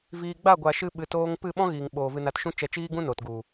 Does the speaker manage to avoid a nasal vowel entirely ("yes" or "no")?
no